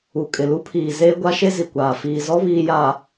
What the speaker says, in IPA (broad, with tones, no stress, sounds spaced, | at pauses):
u˨ kʼ ɪ˨ l u˦ pʰ iː˨ z eː˦ ɡʷ a˦ ʃ e˦ z i˨ kʷ aː˨ f iː˨ z ɔ˦ β iː˨ j a˨